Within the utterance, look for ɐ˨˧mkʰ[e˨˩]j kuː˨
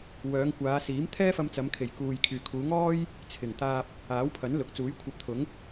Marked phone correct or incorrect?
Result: correct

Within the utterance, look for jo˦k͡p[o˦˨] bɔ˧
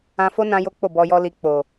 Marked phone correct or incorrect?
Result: correct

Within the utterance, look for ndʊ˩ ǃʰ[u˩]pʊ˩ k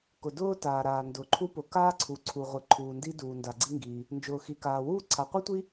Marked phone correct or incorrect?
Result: incorrect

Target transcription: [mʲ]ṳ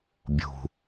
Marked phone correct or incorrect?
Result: incorrect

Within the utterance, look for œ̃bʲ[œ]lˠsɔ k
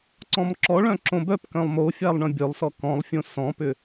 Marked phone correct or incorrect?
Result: correct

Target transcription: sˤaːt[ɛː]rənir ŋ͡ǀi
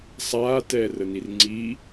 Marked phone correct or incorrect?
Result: correct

